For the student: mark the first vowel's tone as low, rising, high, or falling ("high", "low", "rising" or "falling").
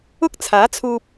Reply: high